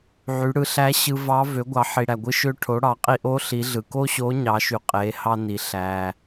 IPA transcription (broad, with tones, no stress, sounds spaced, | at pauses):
ʕ y˩˧ ɽ ɯ˧ ɬ æ˧˥ ɕ ɯ˧ v ɑ˧˥ v ø˩˧ ɡʷ ɑ˩˧ ħ i˩ ɽ æ˩ ɡʷ ɯ˧ ʃ ø˧ ʈʰ o˩˧ ɽ ɑ˩˧ qʼ i˧ ʔ o˧˥ ɬ i˩˧ ɮ ɯ˩ k o˥ ɕ o˧˥ ɲ ɑ˩˧ ʃ y˩˧ qʼ e˩˧ h ɑ˧ n i˩ ɬ æ˩